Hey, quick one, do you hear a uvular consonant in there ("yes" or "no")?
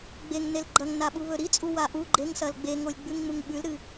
no